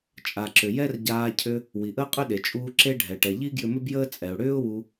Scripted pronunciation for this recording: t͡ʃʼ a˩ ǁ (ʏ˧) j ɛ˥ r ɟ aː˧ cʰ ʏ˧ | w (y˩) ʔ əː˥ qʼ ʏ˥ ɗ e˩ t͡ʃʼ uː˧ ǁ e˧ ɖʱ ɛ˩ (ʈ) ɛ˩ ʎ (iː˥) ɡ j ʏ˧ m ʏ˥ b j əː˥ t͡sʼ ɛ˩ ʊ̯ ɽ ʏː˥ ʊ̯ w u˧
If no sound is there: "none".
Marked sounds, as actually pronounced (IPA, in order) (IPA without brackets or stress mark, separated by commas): ʏ˩, i˩, ʈ, i˥